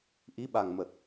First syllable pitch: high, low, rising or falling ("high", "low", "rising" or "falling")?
rising